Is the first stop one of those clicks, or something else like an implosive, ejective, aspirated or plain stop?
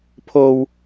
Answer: aspirated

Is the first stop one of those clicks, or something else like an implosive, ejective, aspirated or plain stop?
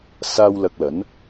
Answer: plain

